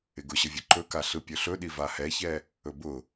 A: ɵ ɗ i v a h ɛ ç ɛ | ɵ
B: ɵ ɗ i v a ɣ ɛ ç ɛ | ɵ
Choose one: A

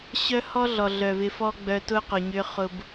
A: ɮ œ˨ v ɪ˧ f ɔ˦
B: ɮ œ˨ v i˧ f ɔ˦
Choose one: A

